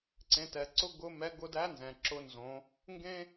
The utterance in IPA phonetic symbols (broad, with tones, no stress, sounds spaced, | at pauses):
ǀ ẽ˩˧ t ɛ˩ ǀ ʊ˧˥ ɡ ʊ˧˥ m ɛ˧˥ ɡ ʊ˧ d æ˧˥ n z ɛ̃˩ ǁ ʊ˧˥ n z õ˩˧ | ŋ ɡ ẽ˥